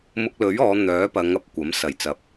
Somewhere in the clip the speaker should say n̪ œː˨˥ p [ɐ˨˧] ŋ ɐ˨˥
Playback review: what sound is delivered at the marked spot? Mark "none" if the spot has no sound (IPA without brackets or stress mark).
ɐ˨˧